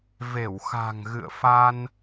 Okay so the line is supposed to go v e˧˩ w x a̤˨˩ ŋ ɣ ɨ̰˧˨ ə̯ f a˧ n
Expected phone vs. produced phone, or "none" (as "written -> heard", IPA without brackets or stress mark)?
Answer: none